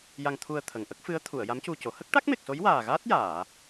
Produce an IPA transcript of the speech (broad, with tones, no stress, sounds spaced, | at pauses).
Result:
j a˧ ŋ t̪ʰ u˧ ə̯ t̪ʰ ə˨˩ ŋ ʔ ə˦˥ k̚ f ɨ˧˥ ə̯ t̪ʰ u˨˩˨ ə̯ j a˧˥ m c u˧ c o˨˩˦ h ə˦˥ k̚ ʈ a˦˥ k̚ m e˨˩ k̚ s o˧˥ j w aː˨˩ ɣ aː˦˥ t̚ j aː˨˩˨